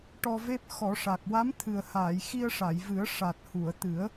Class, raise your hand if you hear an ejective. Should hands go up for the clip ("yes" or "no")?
no